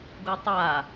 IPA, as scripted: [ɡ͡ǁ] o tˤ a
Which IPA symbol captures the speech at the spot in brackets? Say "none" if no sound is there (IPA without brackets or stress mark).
ɡ